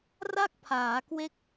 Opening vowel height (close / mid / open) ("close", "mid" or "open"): open